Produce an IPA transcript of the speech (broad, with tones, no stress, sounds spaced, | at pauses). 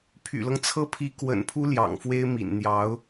pʰ y̰˨˩ l ɤ˦ ŋ t͡sʰ ɤ˥˩ pʰ i˧˥ k w ə̰˨˩ n pʰ u˥ l j ɑ̰˨˩ ŋ f w e˥ ɪ̯ m ḭ˨˩ n n̪ j ɑ˧˥ ʊ̯